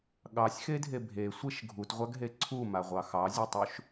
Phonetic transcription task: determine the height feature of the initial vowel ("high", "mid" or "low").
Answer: low